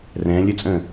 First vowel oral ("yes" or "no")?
no